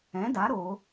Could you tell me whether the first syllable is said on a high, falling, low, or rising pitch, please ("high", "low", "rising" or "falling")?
rising